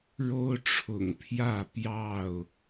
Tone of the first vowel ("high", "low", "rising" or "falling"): high